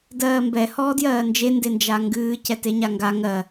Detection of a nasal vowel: absent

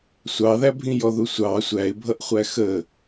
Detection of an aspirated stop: absent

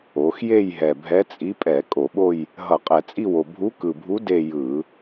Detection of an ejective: present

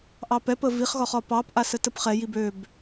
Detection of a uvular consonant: present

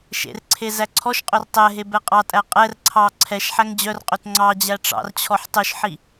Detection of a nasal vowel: absent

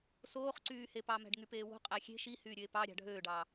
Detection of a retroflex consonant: present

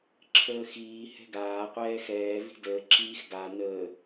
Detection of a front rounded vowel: absent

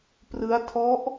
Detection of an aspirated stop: present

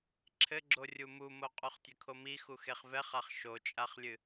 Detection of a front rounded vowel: absent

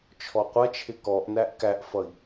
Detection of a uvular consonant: present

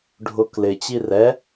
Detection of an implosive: absent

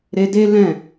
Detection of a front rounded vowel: absent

